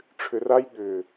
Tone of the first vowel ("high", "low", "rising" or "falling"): low